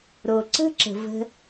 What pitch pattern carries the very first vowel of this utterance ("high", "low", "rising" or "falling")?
low